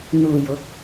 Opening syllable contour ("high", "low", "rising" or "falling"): low